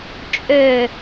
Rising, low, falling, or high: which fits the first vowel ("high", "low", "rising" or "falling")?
falling